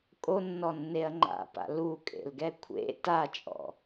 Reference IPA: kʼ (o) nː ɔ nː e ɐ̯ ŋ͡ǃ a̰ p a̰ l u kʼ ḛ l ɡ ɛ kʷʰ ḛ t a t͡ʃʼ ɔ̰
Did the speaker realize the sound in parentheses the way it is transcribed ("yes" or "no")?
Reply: yes